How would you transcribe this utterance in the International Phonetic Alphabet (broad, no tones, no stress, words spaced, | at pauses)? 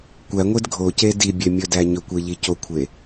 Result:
kʷæŋʷed ɡʱoce dibʲemʲɵdæ ɲɵkʷeʎi cokʷʰe